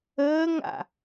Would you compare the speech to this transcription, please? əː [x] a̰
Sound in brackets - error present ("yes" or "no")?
yes